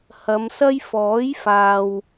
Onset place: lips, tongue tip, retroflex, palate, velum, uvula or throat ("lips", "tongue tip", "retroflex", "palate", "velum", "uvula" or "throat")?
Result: throat